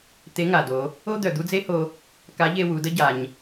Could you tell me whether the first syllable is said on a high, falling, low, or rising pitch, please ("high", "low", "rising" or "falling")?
rising